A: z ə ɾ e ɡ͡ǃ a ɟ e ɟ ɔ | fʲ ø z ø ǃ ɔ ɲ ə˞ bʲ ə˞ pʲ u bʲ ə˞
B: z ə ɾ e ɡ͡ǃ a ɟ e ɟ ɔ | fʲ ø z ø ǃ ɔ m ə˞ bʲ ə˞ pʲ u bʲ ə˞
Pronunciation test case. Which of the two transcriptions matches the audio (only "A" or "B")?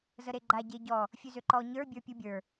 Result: A